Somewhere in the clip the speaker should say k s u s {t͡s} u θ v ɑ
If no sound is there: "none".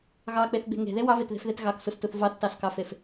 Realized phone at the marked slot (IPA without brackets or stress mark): t